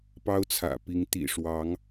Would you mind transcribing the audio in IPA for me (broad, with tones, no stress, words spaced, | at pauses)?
pɑ˥ʊ̯t͡sʰä̰˨˩pi˧˥ŋ t̪ḭ˨˩ʂwɑ˧˥ŋ